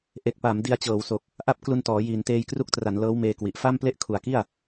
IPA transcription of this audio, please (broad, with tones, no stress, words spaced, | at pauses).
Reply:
ʔe˨˩k̚pa˩˦m di˧a̯t͡ɕɤː˩˦wso˨˩k̚ | ʔa˥˩p̚klu˧ntɔː˩˦jiː˨˩n teː˧jkru˦˥k̚tra˩˦n lɤː˦˥w meː˧kwi˨˩ʔ fa˥˩mple˥˩ʔkʰu˨˩a̯ki˥˩a̯